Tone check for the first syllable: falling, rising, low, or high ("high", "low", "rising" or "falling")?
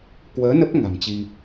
rising